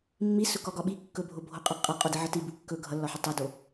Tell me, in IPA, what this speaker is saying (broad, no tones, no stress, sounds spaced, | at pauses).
mː i s ɵ k ɒ ɡ ɒ ɓ i kː ɵ bʱ o bʱ o qʼ ʌ qʼ ʌ qʼ o d i ʕ ʌ t i b u kː ɵ ɡʱ ʌ lː ɒ ħ ɵ tˤ o d o